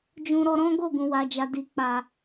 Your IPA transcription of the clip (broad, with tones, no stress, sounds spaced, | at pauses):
d͡ʒ ũ˧ ɾ ɔ˧ ɾ ɔ̃˦ ɡ o˦˨ ɡ ũ˨ w a˨ d͡ʒ a˨ d i˨ k͡p a˨